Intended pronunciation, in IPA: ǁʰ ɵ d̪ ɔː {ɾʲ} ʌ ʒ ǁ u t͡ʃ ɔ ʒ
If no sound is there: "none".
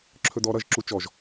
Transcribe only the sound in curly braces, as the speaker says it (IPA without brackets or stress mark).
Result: ɾ